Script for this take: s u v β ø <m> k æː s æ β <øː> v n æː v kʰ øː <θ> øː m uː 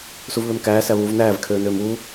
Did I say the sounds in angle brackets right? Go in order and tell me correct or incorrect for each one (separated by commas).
correct, incorrect, incorrect